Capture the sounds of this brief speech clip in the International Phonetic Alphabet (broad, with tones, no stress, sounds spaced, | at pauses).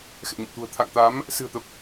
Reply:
x ɛ̰˧˨ ɲ ə̰˧˨ m t̪ ṳ˨˩ ə̯ t̪ʰ a̰˧˨ ŋ t̪ a˨˦ m | s ɨ̤˨˩ ə̯ t̪ ə˨˩ p̚